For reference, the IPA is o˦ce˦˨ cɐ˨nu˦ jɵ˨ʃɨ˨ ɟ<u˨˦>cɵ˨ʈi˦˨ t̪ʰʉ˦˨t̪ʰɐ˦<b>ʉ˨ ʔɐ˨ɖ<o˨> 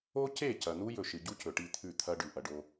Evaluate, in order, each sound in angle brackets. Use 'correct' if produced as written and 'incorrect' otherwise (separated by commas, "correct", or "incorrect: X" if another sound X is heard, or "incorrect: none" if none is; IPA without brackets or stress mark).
incorrect: u˦, incorrect: ɖ, incorrect: o˦